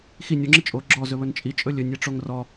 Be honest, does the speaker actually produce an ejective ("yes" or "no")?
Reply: yes